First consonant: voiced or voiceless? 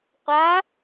voiceless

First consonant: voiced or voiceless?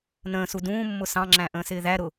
voiced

